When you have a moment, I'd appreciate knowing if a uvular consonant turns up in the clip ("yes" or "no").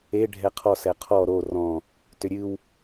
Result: yes